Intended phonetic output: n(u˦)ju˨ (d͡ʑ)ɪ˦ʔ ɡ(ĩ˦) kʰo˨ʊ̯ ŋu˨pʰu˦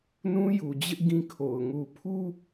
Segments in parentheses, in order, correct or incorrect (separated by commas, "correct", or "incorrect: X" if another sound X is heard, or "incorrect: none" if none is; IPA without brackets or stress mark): incorrect: ũ˦, correct, correct